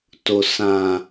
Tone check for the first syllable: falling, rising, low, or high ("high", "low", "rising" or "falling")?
low